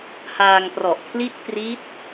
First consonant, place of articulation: glottal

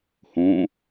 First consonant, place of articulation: glottal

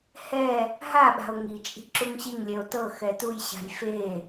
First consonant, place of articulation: glottal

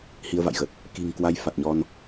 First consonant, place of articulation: glottal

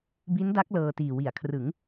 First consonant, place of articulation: labial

